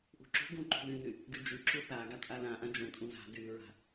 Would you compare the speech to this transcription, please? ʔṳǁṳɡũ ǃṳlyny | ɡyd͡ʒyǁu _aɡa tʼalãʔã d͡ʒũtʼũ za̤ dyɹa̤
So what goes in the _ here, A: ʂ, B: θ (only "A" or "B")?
B